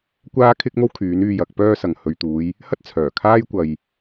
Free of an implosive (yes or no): yes